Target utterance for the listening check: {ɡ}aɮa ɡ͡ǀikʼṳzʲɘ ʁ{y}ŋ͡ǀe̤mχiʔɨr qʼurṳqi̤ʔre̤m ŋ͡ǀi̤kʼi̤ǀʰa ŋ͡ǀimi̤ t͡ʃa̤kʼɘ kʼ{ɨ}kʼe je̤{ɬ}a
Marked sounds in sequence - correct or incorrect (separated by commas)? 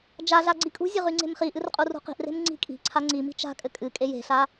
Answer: incorrect, correct, correct, correct